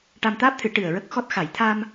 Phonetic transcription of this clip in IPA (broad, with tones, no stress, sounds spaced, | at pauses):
ʈ a˧ m t̪ aː˦˥ p̚ t̪ʰ ɨ˨˩˦ ʈ ɨ˨˩ ə̯ ɹ ə˦˥ k̚ x ɔ˦˥ t̚ x a˨˩˨ j t̪ʰ a˧ m